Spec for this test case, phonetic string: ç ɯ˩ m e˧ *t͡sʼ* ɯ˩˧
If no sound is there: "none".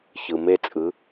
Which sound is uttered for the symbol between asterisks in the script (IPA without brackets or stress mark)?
t͡sʼ